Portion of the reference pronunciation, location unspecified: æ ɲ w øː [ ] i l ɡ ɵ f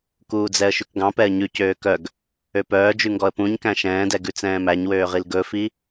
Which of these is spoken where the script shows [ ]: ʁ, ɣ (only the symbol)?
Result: ʁ